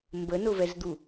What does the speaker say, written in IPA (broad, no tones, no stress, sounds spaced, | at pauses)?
m b ə n ʊ v ɛ z d̪ u